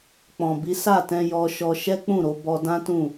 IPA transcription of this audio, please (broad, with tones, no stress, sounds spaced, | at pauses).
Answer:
k͡p ɔ̃˨ b i˨˦ s a˦˨ t ɛ̃˧ j ɔ˧ ʃ ɔ˧ ʃ ɛ˦ k͡p ũ˦˨ ɾ o˧ b ɔ˧ d ã˦ t ũ˦˨